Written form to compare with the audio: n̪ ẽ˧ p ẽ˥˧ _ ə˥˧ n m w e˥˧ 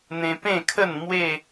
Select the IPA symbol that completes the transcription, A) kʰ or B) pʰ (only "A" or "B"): A